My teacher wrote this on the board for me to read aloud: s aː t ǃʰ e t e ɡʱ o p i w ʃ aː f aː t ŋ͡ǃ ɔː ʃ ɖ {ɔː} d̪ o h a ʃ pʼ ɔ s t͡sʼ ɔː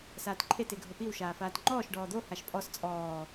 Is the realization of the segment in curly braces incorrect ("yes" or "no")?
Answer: no